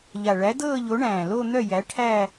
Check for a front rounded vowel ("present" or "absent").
present